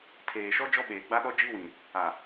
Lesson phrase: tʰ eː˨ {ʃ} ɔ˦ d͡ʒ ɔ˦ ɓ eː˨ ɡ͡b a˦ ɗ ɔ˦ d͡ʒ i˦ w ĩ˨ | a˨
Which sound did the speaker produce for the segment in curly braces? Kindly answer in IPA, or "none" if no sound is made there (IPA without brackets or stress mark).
ʃ